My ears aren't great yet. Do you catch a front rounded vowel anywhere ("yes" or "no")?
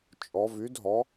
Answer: yes